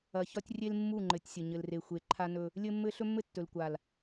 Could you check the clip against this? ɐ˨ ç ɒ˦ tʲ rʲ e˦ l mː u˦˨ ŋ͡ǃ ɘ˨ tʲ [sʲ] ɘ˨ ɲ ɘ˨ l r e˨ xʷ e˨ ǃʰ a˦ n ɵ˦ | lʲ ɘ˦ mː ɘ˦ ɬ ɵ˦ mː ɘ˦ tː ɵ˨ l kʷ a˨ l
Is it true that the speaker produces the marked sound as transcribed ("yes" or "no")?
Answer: yes